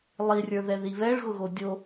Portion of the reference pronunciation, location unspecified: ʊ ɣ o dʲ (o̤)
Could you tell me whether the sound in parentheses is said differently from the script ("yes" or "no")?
yes